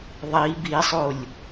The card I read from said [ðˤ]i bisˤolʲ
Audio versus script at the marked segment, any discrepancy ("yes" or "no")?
no